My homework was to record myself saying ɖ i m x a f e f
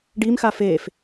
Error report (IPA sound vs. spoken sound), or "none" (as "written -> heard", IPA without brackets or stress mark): none